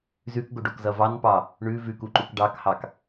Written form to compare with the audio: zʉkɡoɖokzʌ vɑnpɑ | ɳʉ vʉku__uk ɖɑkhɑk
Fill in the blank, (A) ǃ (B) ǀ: A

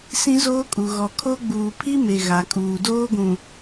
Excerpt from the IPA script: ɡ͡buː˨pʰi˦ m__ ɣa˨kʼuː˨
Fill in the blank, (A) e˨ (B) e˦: A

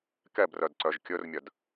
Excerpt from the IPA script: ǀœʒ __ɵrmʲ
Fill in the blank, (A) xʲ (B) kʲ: B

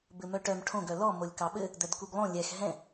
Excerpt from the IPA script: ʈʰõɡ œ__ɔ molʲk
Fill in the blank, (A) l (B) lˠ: A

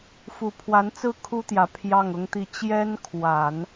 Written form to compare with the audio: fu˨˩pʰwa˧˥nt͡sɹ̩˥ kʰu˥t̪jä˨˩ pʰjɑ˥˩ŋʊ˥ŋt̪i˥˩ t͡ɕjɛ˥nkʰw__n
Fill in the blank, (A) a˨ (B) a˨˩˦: B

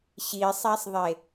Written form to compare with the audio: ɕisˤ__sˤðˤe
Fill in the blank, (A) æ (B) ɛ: A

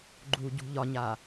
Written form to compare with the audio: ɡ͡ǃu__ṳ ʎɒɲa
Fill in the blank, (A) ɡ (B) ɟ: B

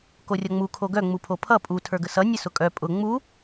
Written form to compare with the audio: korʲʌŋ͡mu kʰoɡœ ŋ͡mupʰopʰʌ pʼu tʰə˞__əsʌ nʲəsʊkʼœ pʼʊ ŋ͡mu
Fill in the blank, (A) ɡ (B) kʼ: A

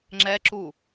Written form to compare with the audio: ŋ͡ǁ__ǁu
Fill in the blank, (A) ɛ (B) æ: A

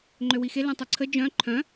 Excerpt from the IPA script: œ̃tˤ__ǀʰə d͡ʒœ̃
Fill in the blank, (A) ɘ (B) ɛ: B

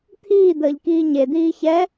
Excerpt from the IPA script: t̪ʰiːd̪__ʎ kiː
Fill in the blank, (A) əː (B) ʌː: A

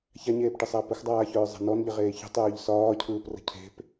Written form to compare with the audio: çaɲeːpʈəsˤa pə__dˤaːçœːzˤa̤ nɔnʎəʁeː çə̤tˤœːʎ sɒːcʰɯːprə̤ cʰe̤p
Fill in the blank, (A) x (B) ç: A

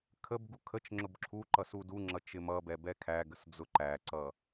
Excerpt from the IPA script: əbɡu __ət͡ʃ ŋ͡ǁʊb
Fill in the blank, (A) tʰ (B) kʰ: B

